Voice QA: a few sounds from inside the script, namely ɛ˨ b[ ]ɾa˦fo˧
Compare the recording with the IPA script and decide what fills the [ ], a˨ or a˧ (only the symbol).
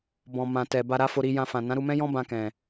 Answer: a˧